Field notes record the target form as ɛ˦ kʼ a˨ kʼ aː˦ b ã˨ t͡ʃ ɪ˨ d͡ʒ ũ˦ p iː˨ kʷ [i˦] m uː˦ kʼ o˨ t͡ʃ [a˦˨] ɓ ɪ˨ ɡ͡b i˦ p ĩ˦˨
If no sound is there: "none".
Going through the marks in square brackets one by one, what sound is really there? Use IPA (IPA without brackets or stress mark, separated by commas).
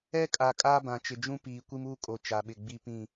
i˦, a˨